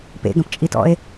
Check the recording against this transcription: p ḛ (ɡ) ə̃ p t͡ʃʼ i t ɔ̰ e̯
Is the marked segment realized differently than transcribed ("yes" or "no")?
no